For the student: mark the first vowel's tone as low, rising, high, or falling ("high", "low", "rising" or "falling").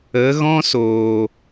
rising